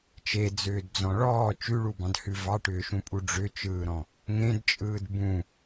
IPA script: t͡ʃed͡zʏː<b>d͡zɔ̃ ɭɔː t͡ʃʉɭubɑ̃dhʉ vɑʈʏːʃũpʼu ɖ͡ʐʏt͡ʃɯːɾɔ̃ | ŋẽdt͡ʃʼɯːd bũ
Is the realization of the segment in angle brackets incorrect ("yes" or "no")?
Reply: yes